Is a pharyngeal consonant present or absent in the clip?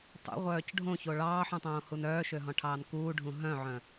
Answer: present